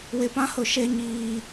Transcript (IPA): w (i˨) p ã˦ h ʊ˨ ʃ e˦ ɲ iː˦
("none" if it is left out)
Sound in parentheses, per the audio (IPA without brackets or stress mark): ɪ˨